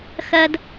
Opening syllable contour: high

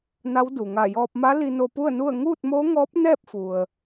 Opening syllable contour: rising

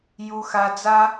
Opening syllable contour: low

